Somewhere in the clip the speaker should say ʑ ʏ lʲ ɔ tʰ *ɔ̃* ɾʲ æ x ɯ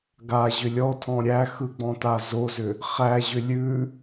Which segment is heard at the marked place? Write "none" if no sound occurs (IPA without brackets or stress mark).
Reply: ɔ̃